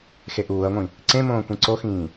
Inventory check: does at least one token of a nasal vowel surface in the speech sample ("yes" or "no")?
yes